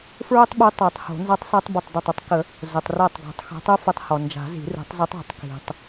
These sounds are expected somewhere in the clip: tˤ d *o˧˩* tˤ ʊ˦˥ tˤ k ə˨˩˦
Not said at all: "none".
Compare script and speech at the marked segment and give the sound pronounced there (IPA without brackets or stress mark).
o˧˩